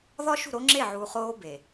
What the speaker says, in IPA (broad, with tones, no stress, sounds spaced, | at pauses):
ð ɒ˦ ʃ ṳ˦˨ ɾ o˦ ŋ͡ǁ e˦˨ ʕ uː˨ χ oː˦ b e˨